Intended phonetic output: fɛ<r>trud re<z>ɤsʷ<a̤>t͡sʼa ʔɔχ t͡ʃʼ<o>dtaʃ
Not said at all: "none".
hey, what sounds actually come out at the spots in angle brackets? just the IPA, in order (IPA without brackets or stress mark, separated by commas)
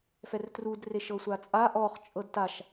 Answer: r, ʃ, a, ɤ